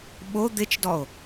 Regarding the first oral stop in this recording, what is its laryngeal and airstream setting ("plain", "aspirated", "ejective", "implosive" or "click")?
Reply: implosive